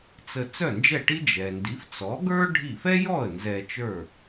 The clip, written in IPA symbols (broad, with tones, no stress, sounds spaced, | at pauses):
t͡s ə˧ t͡s œ˥˩ n d͡ʒ ɛ˥˩ ʈ i˥ d͡ʒ ɛ˩ n d i˩˥ f t͡s ɔ˩˥ ɡ ə˞˥ ɖʱ i˥˩ f ɛ˥ j ɔ˥˩ ə̯ n z ɛ˧ t͡ʃ ə˞˥˩